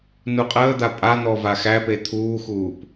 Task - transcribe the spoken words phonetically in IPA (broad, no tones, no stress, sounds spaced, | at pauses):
n u qʼ əː d̪ a pʼ a n̪ ɔ v a x æ p e t̪ʰ uː x uː p